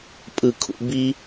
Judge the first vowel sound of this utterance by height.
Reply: high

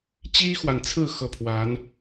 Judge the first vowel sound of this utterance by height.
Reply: high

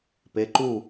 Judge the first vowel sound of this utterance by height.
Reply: mid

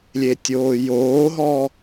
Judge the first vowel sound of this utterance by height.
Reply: mid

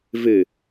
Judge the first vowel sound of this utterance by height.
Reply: high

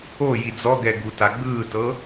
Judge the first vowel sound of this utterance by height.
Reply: mid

